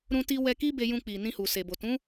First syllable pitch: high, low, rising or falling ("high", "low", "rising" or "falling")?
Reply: high